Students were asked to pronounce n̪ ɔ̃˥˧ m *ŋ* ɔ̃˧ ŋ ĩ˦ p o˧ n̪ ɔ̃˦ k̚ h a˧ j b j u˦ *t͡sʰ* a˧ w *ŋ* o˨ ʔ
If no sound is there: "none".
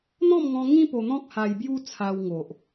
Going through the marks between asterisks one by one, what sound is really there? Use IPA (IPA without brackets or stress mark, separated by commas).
ŋ, t͡sʰ, ŋ